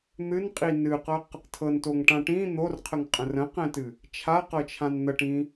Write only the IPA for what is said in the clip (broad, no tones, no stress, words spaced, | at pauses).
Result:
n̪ɨnqʼi nɨqɤq | tʰɤntoŋʈã ʈĩ n̪orqʰəŋqʼə̃ rə̃qɛ̃tɨ | t͡ʃʰaqɤt͡ʃʰãn n̪əʈĩ